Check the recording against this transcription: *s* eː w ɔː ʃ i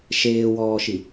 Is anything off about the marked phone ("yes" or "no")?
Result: yes